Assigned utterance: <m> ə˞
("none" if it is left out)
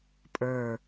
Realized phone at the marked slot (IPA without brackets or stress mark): pʼ